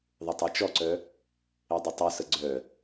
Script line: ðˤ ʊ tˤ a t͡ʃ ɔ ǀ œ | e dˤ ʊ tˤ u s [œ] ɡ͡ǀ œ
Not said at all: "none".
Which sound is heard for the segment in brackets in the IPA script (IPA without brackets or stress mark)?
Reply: ə